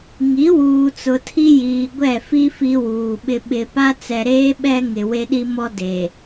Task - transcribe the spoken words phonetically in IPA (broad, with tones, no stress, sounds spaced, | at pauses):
ŋ i˨˦ w uː˨ t͡s ʊ˨ tʰ i˦ j iː˨ ɡʷ ɛ˦˨ f i˦ f i˦ w uː˨ ɓ ɪ˦ ɓ ɪ˨ p a˦ t͡s ɛ˨ ɾ eː˦ ɓ ɛ˦ ŋ ɪ˨ w e˦ ɗ i˦ m ɔ˦ d e˨